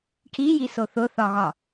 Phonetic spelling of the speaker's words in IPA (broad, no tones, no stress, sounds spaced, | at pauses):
ʈʰ i j i s o θ ʊ θ ɒ ɣ ɒ